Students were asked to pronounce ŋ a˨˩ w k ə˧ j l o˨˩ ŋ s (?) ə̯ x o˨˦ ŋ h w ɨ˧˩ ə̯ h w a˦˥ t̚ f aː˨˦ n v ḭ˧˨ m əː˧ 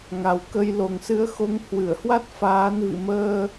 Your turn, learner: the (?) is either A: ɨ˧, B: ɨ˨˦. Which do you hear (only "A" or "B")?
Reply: B